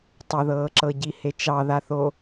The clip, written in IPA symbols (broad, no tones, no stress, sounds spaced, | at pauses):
tˤ ʊ ð ɤː ǁ ɤ ɟ i h e t͡ʃ ɑ ð a θ o